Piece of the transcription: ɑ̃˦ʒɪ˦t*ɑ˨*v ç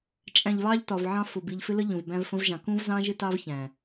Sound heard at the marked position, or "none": ɑ˦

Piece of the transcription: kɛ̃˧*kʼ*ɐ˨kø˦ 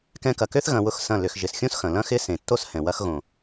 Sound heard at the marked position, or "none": k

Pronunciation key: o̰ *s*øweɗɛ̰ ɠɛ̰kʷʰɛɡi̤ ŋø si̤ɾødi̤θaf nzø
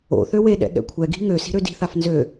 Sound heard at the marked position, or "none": θ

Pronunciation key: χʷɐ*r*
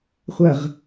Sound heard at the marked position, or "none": ʁ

